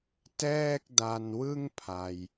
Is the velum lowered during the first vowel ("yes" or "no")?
no